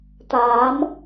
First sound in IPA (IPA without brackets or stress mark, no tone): t̪